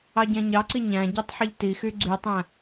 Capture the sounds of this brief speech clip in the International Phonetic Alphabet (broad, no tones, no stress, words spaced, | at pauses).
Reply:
ɑɟæ̃ɲɑǀi ɲæ̃ ɟytˤħəʎtixy ɡ͡ǀytˤæ̃